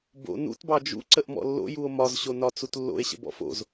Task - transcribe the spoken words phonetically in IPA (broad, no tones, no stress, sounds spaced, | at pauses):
b o̰ n ṵ t b ɑ d͡ʒ ṵ ǀ ə ʔ m ɔ̰ lː o̰ j u o̯ m ɒ z ɕ o n ɒ t͡s u t lː o̰ e̯ ɕ ə̰ b ɔ̰ f o̰ z